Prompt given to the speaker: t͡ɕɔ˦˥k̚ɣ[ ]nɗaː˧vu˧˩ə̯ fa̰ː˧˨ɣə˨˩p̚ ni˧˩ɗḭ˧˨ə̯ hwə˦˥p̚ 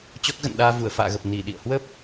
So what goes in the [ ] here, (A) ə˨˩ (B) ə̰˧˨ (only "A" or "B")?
B